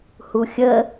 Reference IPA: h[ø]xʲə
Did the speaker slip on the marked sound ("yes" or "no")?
yes